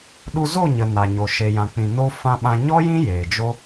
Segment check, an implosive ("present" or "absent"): present